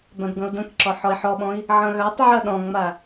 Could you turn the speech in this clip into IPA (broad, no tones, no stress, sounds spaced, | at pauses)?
b ã d ɡ ɐ̃ u̯ d ɐ̃ k ǁ ɔ ħ ɔ i̯ ħ ɔ ɓ ɔ̃ i̯ | ʕ ɐ̃ ɣ a tˤ ʕ ɐ ɗ ɔ̃ ŋ͡m a